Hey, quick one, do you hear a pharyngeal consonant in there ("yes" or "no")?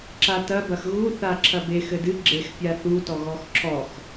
no